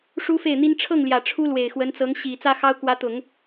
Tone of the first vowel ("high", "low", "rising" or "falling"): high